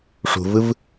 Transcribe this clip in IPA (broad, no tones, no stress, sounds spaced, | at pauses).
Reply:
ʂ ṳ v ɯ v